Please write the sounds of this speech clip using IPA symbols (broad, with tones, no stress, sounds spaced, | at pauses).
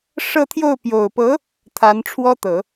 ʂ ɤ˥˧ t̪ʰ j o˥˩ ʊ̯ p j o˨˩ ʊ̯ p ɤ˧˥ | t̪ʰ a˧˥ n ʈ͡ʂʰ w ɔ˥ t̪ ɤ˨˩˦